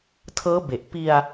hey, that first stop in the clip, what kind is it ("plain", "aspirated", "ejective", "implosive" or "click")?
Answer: aspirated